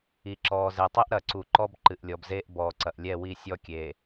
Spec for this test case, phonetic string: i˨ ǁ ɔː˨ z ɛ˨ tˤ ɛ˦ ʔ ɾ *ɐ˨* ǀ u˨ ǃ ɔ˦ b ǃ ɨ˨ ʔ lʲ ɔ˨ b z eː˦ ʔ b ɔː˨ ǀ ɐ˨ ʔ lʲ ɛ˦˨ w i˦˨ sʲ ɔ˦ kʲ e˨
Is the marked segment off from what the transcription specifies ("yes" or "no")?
no